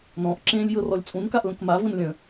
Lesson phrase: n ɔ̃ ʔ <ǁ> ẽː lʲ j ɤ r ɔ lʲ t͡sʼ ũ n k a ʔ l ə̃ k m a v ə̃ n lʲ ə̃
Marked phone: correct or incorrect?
correct